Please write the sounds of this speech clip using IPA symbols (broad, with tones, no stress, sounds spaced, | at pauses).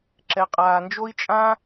ǁ ɛ˨ qʼ aː˨ n d͡ʒ o˦ i̯ t͡ʃʼ ã˦